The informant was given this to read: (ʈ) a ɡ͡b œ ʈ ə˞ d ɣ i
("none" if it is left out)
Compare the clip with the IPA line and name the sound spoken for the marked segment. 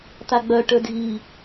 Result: t̪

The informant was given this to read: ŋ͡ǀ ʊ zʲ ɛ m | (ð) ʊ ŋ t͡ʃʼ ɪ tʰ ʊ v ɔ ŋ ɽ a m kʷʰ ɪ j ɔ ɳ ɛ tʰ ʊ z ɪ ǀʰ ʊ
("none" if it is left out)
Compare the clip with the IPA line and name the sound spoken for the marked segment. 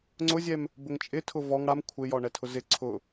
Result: b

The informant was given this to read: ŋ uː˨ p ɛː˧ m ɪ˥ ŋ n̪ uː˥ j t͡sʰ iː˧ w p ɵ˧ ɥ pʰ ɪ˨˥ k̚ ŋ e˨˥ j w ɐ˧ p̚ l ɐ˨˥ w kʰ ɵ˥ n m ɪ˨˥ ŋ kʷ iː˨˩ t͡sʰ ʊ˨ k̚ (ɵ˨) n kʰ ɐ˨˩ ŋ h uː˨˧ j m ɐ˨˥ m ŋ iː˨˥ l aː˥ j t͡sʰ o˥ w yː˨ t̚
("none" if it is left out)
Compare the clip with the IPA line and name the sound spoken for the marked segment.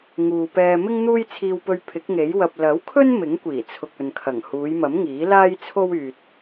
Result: ɵ˨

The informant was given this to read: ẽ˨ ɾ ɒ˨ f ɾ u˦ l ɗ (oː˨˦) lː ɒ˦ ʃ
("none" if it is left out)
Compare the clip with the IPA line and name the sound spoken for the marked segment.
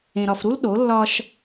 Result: o˨˦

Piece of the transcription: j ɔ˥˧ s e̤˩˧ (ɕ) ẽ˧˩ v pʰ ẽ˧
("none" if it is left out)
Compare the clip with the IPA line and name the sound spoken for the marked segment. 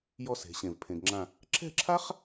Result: ɕ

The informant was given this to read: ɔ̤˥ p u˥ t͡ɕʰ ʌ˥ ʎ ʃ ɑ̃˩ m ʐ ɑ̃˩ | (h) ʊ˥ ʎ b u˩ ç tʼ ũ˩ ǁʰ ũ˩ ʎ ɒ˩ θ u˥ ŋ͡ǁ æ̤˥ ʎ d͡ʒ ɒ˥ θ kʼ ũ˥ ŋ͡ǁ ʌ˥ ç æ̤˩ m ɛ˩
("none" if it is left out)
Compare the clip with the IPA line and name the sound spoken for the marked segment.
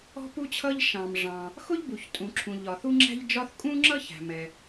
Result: x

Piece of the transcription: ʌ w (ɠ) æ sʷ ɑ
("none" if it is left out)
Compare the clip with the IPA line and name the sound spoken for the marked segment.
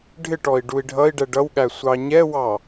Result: ɠ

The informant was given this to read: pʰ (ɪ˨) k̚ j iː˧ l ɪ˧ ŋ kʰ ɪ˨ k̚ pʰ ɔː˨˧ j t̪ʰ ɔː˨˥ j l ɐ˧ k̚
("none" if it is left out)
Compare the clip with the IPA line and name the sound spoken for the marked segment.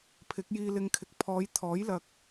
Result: ɪ˨˥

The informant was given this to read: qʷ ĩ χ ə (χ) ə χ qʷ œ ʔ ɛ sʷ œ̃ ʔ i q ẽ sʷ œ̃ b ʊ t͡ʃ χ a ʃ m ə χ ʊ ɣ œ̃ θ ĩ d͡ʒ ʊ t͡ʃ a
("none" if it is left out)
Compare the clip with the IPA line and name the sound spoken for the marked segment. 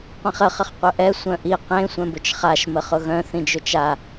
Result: χ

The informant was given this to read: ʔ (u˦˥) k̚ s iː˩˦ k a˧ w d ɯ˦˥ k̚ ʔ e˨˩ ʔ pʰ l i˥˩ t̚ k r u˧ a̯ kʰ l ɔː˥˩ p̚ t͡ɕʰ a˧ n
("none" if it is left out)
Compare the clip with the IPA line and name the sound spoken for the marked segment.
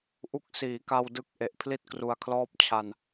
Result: u˦˥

